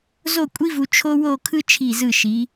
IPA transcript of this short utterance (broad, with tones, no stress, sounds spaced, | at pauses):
z o˥˧ kʷʼ i˥ v u˧ t͡ʃʰ o˥ w o˥˧ kʰ ɯ˥ t͡ʃʰ i˧˩ z ɯ˧˩ ʃ i˩˧